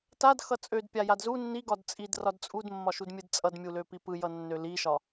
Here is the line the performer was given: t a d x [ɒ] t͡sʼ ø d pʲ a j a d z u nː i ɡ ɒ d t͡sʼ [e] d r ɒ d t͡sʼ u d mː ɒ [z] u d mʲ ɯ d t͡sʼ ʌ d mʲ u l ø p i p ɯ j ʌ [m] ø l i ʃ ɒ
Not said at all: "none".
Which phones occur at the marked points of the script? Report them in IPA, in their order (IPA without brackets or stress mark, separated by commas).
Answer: ʌ, i, ʃ, nː